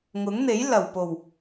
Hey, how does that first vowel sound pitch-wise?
rising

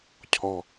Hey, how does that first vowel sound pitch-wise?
low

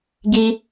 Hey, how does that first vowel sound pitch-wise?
high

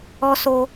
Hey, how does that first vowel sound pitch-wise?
high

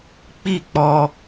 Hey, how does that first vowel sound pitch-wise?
falling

